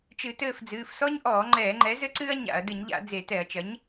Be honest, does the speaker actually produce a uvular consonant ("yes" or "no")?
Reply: no